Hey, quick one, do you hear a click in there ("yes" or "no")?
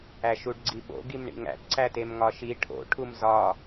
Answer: yes